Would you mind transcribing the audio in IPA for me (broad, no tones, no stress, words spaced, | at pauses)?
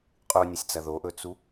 qʼunʲasʲt͡sɐ ðoʔɵt͡su